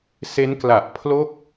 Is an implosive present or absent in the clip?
absent